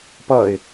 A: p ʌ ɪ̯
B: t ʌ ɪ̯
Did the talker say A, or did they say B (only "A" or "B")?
A